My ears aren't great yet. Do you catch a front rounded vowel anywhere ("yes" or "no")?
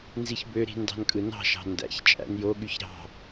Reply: yes